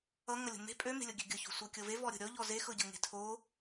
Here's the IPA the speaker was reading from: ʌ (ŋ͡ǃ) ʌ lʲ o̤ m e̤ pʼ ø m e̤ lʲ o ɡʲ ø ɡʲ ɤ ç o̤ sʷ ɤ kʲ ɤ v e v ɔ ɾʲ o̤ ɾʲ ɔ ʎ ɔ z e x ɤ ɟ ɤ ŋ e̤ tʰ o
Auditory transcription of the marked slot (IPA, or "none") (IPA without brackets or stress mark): ŋ